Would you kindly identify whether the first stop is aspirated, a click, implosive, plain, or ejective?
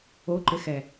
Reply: click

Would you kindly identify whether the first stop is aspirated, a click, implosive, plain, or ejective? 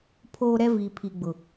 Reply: aspirated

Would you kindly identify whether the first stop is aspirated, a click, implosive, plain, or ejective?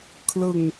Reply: aspirated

